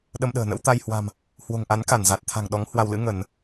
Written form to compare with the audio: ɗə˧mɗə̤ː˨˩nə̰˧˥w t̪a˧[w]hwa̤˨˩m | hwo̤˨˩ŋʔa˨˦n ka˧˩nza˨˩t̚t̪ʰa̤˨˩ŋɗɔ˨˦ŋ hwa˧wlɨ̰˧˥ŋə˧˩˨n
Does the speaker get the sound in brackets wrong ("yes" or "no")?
yes